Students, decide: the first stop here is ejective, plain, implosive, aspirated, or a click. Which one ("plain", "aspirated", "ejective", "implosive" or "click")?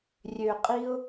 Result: ejective